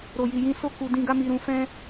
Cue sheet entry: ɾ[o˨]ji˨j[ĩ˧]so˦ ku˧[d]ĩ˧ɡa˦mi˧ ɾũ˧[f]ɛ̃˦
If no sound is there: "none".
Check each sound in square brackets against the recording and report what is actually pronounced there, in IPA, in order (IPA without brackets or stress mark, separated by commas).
o˨, ĩ˧, d, f